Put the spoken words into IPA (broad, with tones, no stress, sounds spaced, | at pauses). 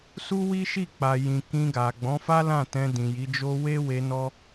s u˦ w i˦ ʃ i˦˨ k͡p a˨ j ĩ˨ k ĩ˧ ɡ a˨ ɡ͡b ɔ̃˨˦ f a˦ l ã˦˨ t ɛ̃˧ d ĩ˨ j i˨˦ d͡ʒ o˦ w e˦ w e˧ n ɔ˦